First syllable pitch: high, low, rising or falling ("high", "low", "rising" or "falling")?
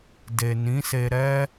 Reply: low